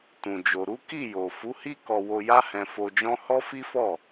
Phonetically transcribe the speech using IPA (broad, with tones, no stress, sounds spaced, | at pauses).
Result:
t ũ˨ d͡ʒ o˨ ɾ u˨˦ k i˦˨ j o˨ f u˨˦ h i˦ k ɔ˧ w o˧ j a˦ h ɛ̃˧ f o˧ d͡ʒ ɔ̃˦ h ɔ˦ f i˦ f ɔ˦˨